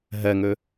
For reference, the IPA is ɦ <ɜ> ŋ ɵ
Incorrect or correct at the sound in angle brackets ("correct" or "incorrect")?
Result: correct